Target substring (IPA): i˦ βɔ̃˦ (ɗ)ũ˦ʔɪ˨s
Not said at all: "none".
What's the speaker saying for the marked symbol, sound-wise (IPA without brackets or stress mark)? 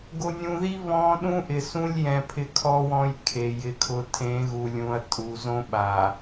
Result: ɗ